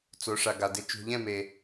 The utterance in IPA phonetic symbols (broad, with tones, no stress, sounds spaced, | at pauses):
t͡s o˨˦ ʂ a˨ ɡ a˨ d ɪ˧ t͡ʃ ṳ˨ ʎ ɛ̃˦˨ m e˨